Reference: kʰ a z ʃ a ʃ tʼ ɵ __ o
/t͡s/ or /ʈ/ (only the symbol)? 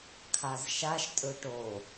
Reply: ʈ